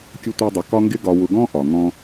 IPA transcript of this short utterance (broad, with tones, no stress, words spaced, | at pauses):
kʲʊ˦tʷæ˦dˤə˧ kɒ˦ŋɡɪ˦ɡɒ˧ wʊ˧ɡɔ̃˦ ʔɒ˨ ŋɔ̃˧